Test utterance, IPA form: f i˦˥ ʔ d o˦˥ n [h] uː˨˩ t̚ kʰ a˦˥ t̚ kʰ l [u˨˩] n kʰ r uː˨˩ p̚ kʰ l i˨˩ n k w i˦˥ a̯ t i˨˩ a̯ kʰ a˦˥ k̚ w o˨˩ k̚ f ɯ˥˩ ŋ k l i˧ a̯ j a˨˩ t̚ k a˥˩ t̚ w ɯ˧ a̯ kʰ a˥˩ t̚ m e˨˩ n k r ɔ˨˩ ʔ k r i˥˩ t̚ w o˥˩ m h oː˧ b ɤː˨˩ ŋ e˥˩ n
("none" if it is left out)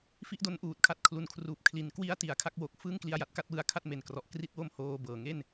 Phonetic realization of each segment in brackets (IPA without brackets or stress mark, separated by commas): ʔ, u˨˩